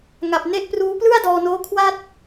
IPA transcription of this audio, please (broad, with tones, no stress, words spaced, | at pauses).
ŋa˨˩p̚ne˥˩ʔpruː˦˥ plɯ˥˩a̯dɔː˧noː˦˥ kʰwa˥˩t̚